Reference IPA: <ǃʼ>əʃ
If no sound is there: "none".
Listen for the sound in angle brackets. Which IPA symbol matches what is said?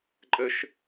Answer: ǃʼ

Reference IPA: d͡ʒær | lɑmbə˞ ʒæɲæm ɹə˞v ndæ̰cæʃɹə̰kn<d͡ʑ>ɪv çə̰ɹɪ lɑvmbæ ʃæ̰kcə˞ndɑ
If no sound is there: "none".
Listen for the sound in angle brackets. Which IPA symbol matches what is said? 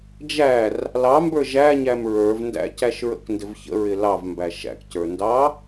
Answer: d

